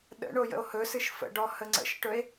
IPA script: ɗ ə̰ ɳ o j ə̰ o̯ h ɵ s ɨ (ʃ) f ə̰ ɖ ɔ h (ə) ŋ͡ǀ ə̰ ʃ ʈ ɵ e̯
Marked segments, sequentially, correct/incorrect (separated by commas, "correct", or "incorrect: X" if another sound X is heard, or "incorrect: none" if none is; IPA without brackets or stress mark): correct, correct